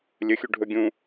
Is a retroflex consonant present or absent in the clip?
present